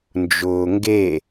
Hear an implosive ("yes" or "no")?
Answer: no